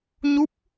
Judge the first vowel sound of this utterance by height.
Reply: high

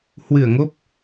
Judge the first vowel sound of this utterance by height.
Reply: high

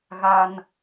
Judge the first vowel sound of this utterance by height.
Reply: low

